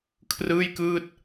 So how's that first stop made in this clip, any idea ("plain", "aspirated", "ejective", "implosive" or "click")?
aspirated